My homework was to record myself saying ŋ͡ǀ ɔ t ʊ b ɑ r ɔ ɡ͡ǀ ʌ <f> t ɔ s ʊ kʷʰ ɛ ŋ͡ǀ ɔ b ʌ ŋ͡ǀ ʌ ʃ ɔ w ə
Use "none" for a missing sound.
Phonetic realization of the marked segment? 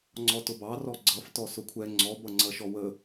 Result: f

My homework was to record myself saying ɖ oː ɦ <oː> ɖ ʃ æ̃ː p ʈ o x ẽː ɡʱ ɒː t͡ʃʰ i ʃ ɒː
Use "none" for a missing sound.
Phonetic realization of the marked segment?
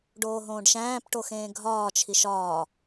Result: õː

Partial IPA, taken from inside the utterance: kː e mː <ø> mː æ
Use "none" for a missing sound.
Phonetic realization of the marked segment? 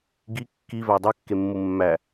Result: u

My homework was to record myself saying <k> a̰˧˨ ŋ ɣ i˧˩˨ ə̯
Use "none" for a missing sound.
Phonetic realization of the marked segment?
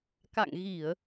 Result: k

